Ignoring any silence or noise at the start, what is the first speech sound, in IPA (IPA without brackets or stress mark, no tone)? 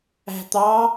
æ̤